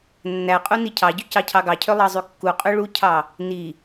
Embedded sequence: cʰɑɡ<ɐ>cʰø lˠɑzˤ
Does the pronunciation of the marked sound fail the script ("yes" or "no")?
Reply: yes